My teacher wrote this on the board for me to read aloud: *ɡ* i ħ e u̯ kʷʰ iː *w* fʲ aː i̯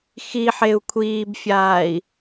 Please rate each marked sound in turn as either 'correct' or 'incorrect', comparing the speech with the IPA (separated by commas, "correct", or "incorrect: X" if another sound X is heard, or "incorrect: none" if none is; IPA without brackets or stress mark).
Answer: incorrect: x, incorrect: b